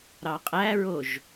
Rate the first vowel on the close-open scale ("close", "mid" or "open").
open